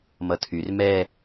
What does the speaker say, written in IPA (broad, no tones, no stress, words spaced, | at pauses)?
mʌtʰyr mɛ